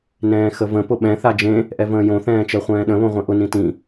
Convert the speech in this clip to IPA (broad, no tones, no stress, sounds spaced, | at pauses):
n ɛ̃ː x ə v ə̃ p ʊ ɓ ɛ̃ θ a d͡ʒ ẽ | ʔ ɛ v ə̃ː j õ θ ɛ̃ː t͡ʃ ɜ χʷ ɛ̃ː ɗ ə̃ β õ ʁʷ ẽ ʔ ʊ n ĩ t ĩ